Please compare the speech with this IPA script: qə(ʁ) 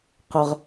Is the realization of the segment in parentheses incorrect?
no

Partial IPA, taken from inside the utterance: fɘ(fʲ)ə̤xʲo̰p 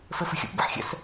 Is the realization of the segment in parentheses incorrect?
yes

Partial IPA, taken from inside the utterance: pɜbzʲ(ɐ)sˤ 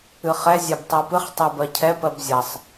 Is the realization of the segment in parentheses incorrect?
no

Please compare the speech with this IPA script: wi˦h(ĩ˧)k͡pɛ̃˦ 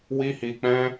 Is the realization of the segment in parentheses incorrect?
yes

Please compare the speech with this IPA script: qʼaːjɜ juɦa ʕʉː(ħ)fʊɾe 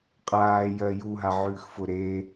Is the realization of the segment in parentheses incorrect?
yes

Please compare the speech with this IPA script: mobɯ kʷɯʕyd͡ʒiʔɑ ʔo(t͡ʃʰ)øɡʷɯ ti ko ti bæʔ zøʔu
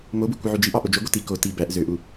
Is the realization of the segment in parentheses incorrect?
yes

